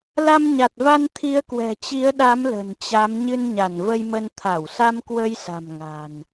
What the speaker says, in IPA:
la˧mɲa˨˩t̚va˧n t̪ʰi˨˦ə̯kwɛ̤˨˩t͡ɕi˨˦ə̯ɗa˨˦m lə̤˨˩nt͡ɕa˨˦m ɲɨ˧nɲa˧˩nvə˧jmə˧n t̪ʰa˧˩wsa˧mkwə˧jsa̤˨˩m ŋa̤˨˩n

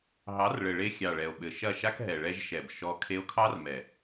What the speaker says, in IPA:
ɦɑ˨˦rɭɘ˨ɭe˧ xʲɑ˨ɭɛ˨o̯ɓɘ˨ ʃɐ˦˨ʃa˦kɦɛ˨ ɭɛ˧ʒʃɛ˨b ʃɔ˧ kʰe˧o̯kʰɑ˦rmɛ˨

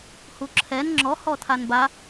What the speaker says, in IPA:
huǁʰɛn ŋ͡ǁɔ hɔtʰanba

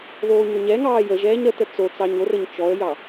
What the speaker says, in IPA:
ðoːɲoɲɛŋɑː jəʒɛːɲ ɾətə t͡sot͡sɑɲ orəɲ t͡ʃɔə̯jɑ

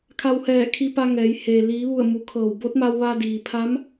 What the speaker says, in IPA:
kʰa˧whɛː˧˩kʰi˧pa˧ ŋɛː˩˧j heː˩ liː˩˧ʋu˧˩ə̯ mu˩˧kʰɤː˧˩w bo˧˥t̚ma˧wʋa˧diː˩ pʰa˧˥m

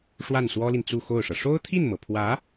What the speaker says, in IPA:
ʂwa˥˩nswɔ˥li˨n t͡su˥˧xo˥˩ʊ̯ʂɤ˩ ʂo˥ʊ̯t̪ʰi˥˩nmɤ˩pʰwä˧˥

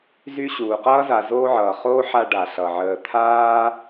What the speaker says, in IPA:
zy˦ɕuː˩qʌː˥za˨ zoː˦ʕʌː˩χoː˥ ħa˦ɖa˩ ɬʌ˩ʕəː˨ t̪ʰaː˥

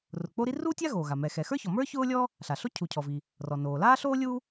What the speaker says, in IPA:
rʊ˩k͡po˥ɾi˥ ru˥tʲa˥ ɣoː˩ɣa˩ mɛ˩xɛ˩xə˞˥çɔ˩ mə˞˥ çʊː˥lʲɔ˥ | ɬa˩ɬo˥ cʰu˩cʰɔ˩vi˩ | rɔ˩noː˩ laː˥ɬoː˥ lʲu˥

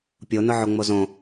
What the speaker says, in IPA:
pʲonʊʕoŋ͡mo zõ

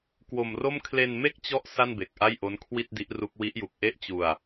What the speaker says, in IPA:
kwo˧mro˥˩m kʰle˧nme˥˩k̚t͡ɕɔ˦˥ʔ sa˥˩nbe˨˩k̚ ʔa˥˩jʔo˦˥nkʰwi˥˩t̚ di˦˥ʔru˦˥k̚ wi˦˥ʔju˨˩k̚ ʔe˥˩ʔt͡ɕu˧a̯

